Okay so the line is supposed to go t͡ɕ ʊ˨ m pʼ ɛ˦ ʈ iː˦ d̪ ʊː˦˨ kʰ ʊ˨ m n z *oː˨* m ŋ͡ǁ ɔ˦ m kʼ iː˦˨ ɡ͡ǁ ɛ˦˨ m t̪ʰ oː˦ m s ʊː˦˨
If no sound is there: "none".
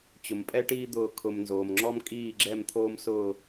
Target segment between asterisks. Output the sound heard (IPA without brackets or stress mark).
oː˨